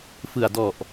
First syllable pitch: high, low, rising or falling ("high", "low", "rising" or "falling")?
low